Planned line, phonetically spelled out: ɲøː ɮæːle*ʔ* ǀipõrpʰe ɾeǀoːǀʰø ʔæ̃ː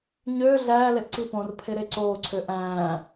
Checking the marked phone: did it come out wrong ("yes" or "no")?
no